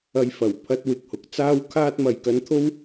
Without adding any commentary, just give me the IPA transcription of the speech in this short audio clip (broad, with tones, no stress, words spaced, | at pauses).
ɐ˨˧jfɐ˨˩wpʰɐ˧t̚ wɪ˨k̚hʊ˨k̚t͡saː˥wkʰaː˥t̚ mɐ˨jkɐ˧nt̪ʰo˥w